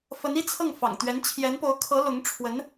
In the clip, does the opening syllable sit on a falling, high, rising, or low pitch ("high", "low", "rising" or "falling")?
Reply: rising